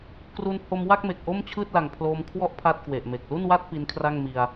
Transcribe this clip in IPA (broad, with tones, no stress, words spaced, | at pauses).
kru˧n ho˧m wa˥˩k̚me˨˩k̚ ʔo˥˩mt͡ɕʰɯː˥˩t̚la˨˩ŋ pʰloː˧mkʰwɔ˥˩ʔ pʰa˥˩t̚kwe˨˩ʔme˨˩k̚ lu˥˩nwa˥˩t̚ pi˦˥nkʰra˥˩ŋmi˧a̯